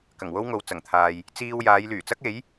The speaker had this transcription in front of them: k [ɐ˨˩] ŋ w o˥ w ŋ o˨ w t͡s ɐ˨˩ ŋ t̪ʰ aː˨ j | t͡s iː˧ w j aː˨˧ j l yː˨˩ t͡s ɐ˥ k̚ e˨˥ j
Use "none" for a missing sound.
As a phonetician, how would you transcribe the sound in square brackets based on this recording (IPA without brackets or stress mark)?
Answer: ɐ˨˩